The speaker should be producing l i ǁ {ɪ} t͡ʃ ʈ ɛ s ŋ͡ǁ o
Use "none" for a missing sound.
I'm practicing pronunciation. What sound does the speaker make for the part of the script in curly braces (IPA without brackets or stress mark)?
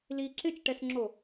ɪ